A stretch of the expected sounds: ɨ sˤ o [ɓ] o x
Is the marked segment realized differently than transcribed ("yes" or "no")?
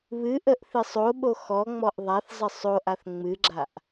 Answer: no